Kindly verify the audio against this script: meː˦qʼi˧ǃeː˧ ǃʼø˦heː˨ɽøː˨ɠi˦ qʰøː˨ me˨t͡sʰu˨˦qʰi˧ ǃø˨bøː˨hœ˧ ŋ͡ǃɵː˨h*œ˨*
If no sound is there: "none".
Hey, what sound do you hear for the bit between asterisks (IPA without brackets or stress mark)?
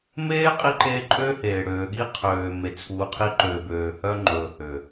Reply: ø˨